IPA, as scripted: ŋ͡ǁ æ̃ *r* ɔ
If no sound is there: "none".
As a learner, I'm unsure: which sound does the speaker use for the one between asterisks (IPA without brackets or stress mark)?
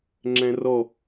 r